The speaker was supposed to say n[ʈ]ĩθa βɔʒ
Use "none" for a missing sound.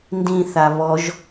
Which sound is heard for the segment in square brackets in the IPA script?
d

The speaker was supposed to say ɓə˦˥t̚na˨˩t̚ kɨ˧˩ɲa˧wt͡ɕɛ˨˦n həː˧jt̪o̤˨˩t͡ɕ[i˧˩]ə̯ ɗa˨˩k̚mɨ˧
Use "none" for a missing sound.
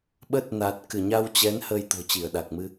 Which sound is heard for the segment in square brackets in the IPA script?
i˧˩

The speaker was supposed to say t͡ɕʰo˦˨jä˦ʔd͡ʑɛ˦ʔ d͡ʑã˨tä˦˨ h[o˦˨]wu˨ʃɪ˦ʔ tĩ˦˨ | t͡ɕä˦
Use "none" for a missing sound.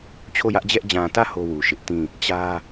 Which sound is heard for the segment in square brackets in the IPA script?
o˦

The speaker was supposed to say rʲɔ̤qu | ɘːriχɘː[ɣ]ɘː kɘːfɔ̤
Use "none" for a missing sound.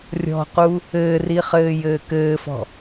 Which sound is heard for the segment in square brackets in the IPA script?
j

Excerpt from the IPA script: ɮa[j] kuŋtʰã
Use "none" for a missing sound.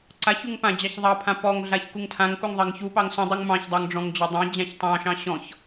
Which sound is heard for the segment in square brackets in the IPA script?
ç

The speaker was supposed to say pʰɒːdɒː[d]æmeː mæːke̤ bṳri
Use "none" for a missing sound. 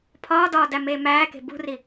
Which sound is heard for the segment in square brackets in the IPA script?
d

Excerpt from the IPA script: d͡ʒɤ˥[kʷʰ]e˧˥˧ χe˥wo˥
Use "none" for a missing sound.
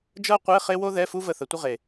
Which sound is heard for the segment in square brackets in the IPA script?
qʷ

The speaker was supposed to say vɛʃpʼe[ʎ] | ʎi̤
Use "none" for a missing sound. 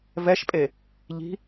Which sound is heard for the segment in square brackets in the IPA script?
none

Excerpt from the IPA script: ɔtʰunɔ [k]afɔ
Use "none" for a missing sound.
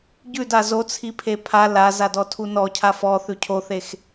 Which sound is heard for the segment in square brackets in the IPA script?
cʰ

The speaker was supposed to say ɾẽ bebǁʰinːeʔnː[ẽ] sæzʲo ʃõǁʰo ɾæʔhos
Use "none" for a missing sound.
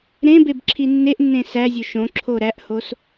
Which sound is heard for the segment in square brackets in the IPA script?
ẽ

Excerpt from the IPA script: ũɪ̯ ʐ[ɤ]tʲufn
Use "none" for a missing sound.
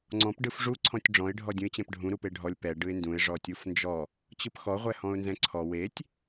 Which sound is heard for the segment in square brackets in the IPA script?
ɔ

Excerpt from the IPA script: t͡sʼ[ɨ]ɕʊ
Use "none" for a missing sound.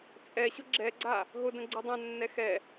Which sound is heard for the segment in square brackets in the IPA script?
ɛ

